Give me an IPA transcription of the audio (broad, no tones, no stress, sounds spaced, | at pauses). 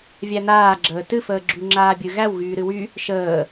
vʲ æ n̪ aː ɡ͡ǁ əː t ɨ f əː ɡ͡ǁ y ŋ͡ǁ aː bʲ ɨ ɣ æ w ɣ yː ɾ ɨ w y | ʃ əː